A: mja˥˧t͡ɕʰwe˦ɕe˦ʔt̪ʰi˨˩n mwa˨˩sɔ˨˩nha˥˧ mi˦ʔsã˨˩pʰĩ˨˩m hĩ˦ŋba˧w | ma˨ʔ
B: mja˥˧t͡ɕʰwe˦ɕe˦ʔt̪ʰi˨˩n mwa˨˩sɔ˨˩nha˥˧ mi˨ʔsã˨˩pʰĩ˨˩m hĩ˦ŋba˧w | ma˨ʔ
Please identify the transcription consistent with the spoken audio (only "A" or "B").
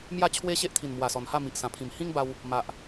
B